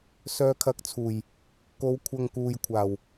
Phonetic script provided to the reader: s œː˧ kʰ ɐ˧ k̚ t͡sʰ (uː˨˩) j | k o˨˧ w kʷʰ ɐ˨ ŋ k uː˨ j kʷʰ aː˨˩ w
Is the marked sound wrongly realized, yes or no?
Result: no